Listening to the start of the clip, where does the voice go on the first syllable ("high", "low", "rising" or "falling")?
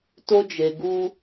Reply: high